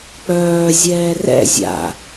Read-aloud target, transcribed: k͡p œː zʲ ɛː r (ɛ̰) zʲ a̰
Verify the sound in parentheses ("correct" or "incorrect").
correct